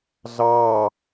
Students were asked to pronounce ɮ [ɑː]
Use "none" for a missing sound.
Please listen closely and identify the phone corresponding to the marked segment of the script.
ɑː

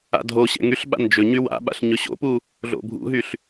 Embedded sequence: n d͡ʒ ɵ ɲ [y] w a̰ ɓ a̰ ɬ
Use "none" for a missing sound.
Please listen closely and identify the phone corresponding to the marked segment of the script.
y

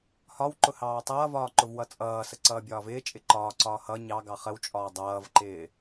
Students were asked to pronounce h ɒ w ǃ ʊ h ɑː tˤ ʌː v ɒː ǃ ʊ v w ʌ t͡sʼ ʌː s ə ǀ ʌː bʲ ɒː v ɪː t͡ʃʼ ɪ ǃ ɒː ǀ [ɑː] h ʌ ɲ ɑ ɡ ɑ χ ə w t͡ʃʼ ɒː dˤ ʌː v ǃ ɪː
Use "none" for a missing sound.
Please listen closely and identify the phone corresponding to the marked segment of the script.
ɒː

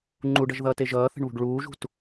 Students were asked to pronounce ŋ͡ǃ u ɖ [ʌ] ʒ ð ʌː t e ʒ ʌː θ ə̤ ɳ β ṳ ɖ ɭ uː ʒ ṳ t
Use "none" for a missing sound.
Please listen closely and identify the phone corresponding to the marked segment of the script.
ʌ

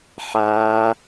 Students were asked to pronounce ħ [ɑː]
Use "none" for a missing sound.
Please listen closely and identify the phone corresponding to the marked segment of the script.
aː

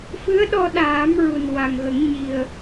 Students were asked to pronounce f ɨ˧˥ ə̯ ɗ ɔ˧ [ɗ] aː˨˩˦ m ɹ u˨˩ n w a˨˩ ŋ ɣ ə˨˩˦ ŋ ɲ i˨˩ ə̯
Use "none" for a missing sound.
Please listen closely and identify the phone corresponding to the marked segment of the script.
ɗ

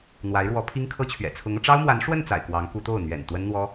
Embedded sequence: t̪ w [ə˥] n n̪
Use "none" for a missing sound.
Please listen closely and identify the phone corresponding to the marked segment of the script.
ə˥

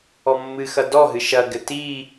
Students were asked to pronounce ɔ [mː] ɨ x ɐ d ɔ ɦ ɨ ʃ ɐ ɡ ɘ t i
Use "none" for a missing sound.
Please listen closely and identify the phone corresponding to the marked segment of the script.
mː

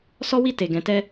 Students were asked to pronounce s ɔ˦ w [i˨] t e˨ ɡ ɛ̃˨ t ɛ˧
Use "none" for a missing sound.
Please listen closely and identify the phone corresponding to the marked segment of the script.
i˦˨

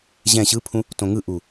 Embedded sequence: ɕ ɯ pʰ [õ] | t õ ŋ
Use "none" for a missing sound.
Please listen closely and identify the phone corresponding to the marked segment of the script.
ũ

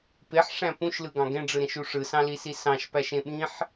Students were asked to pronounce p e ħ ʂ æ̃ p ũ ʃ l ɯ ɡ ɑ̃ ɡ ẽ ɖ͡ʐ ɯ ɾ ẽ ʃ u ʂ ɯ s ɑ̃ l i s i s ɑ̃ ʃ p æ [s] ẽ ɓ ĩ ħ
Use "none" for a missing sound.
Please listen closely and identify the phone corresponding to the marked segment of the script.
ʃ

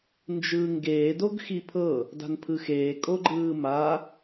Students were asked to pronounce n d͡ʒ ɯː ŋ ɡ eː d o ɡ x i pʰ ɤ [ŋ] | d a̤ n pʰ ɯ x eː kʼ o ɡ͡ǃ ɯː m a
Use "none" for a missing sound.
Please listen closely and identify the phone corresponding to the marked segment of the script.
none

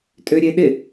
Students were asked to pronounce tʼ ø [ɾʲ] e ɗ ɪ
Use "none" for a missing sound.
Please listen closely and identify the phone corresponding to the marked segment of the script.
ɾʲ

